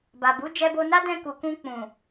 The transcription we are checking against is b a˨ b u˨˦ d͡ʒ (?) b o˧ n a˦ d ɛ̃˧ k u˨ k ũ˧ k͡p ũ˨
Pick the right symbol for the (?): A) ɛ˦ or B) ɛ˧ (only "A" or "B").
B